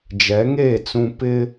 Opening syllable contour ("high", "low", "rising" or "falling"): rising